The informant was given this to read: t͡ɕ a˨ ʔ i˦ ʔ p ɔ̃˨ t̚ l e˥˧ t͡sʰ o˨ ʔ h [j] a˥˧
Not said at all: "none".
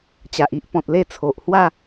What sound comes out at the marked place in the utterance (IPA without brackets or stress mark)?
w